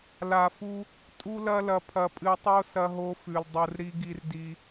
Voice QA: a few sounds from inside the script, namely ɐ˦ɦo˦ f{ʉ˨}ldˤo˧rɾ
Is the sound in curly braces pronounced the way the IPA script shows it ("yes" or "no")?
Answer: yes